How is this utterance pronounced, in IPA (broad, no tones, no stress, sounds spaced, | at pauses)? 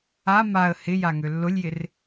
a m a ə̯ h ɪ j a ŋ ø lː ʊ lʲ j ɪ r